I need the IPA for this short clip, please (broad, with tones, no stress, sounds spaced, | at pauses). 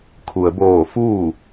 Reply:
kʰ u˩ ə̯ b oː˧˩ f uː˥˨